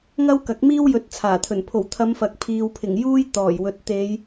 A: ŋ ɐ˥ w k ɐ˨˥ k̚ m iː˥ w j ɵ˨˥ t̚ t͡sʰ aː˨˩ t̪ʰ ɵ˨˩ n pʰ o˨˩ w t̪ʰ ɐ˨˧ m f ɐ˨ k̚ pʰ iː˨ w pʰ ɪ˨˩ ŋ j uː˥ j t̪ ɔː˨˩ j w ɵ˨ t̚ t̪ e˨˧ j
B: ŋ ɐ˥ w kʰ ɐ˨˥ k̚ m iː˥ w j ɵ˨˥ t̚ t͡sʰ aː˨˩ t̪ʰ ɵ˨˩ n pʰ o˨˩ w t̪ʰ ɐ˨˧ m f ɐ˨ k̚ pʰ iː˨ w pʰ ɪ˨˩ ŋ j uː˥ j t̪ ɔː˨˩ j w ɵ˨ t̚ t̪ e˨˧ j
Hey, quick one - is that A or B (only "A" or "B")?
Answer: A